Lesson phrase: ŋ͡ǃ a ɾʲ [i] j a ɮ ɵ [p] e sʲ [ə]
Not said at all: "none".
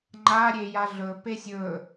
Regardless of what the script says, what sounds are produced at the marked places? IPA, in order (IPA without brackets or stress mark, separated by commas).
e, p, ɵ